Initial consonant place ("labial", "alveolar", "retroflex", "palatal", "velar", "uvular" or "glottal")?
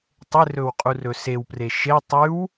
alveolar